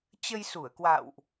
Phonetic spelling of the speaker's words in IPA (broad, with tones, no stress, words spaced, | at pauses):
t͡ɕə˧jsu˧˩ə̯kwa̰ː˧˨wʔ